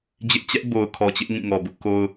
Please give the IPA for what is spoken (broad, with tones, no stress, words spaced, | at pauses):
d͡ʑɪ˦ʔ t͡ɕɛ˦ʔ bo˨ʊ̯kʰɔ˨t͡ɕɪ˦ʔ ŋĩ˦˨ŋɔ˨ bʊ˦ʔko˦ʊ̯